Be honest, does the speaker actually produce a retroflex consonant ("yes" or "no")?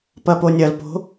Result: no